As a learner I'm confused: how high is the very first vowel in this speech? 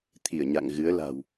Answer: high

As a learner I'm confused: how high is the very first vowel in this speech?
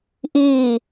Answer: high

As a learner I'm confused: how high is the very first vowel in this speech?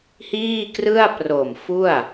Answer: high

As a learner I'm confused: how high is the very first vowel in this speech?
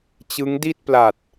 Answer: high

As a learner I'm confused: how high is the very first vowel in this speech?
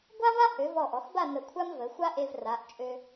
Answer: low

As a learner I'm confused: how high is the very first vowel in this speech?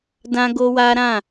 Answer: low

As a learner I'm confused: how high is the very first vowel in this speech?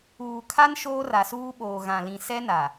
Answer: high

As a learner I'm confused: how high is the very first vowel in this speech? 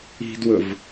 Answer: high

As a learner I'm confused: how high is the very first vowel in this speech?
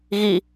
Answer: high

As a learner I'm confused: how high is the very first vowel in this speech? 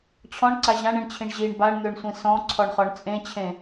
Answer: mid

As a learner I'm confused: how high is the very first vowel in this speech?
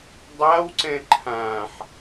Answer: low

